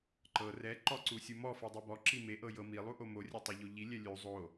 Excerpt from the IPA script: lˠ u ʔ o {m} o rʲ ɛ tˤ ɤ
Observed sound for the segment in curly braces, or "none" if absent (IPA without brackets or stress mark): m